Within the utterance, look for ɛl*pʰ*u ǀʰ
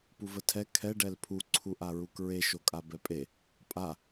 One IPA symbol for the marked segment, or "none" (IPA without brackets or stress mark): pʰ